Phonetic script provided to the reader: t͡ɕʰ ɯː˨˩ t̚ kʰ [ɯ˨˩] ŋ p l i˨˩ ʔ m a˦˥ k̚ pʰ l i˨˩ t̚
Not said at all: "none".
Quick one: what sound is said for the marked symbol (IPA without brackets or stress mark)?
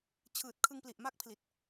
ɯ˧